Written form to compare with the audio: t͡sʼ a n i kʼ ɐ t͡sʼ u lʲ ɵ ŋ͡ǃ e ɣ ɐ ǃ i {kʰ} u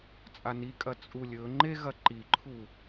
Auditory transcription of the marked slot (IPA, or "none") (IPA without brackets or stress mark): ǃʰ